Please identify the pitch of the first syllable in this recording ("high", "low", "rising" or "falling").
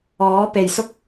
rising